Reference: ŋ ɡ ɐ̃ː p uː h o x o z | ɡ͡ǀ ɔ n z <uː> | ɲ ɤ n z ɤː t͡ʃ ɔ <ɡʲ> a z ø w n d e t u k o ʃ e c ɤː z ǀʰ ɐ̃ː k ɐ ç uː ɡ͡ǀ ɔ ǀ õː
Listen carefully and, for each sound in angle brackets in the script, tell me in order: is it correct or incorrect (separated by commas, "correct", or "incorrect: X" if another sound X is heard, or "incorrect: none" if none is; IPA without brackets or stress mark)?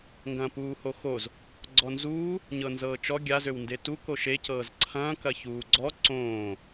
correct, correct